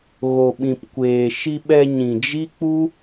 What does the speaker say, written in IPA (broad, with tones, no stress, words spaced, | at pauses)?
ɣo˨ɓĩ˨pkʷeː˨ ʃi˧ɓɛ˧ ɲĩ˨d͡ʒi˦k͡pu˦